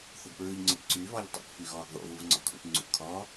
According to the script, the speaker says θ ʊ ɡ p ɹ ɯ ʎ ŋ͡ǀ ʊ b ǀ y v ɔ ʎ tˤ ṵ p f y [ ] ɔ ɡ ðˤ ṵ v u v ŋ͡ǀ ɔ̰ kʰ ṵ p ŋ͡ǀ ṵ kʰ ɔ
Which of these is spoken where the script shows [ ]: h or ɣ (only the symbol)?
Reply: ɣ